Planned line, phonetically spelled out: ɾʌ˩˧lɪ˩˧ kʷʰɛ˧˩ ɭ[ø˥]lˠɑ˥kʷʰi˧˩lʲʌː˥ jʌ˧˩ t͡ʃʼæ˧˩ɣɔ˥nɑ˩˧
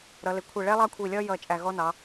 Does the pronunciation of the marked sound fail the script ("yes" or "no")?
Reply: yes